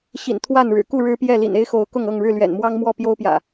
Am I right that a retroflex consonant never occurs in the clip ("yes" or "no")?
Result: no